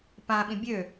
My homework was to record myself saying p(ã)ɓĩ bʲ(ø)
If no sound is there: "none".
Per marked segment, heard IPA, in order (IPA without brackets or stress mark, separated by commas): ã, ø